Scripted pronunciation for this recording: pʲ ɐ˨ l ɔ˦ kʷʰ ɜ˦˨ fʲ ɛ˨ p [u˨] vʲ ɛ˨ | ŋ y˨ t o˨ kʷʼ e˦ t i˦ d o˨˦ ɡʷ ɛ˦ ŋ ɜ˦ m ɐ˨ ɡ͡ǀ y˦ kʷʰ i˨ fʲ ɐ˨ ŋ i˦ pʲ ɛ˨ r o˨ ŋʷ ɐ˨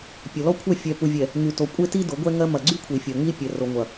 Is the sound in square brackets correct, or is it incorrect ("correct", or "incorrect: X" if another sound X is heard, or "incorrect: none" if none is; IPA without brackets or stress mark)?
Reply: correct